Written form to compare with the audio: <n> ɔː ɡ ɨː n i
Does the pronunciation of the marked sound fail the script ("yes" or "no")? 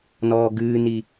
no